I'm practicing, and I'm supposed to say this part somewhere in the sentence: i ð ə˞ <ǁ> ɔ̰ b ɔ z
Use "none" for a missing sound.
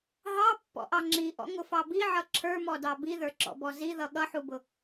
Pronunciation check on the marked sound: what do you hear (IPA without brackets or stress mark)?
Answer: ǁ